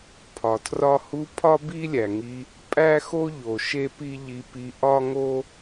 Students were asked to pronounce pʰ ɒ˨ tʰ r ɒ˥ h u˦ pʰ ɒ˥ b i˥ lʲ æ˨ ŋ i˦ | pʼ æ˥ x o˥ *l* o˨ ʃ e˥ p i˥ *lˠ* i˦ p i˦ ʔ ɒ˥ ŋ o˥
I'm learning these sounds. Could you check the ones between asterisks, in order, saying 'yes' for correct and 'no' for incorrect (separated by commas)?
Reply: no, no